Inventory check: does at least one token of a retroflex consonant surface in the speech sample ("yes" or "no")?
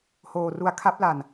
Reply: no